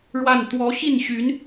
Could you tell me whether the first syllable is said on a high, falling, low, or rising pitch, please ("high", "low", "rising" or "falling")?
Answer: falling